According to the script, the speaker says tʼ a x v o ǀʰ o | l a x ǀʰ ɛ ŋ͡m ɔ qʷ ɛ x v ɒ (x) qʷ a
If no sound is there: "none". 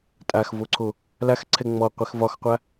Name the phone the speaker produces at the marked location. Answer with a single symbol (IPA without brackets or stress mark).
x